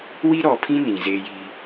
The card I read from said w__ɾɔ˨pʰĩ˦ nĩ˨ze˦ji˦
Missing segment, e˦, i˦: i˦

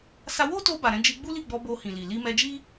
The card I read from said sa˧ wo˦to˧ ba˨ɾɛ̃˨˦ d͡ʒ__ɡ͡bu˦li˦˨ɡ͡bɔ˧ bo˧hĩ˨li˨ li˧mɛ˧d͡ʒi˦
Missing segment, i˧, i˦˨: i˧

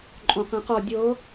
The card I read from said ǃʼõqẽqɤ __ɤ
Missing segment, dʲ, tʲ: dʲ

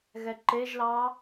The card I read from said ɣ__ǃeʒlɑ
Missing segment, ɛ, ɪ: ɛ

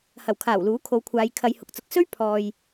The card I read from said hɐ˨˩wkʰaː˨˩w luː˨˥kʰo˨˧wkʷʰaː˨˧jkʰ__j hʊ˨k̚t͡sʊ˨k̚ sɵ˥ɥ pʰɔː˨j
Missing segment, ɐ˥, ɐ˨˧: ɐ˨˧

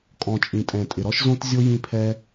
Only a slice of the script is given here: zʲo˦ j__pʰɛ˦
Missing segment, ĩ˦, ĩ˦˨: ĩ˦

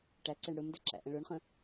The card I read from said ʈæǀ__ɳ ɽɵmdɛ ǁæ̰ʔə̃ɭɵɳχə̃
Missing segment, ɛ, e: ɛ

